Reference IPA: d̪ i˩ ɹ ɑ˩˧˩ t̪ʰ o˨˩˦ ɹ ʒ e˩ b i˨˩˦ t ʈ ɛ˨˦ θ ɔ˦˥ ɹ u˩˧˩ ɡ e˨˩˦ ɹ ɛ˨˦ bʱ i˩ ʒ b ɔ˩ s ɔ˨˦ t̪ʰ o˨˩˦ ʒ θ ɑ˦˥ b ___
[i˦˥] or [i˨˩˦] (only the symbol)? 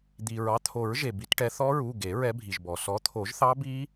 i˦˥